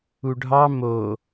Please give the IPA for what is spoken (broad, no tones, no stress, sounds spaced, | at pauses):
u ɖʱ ɑ m o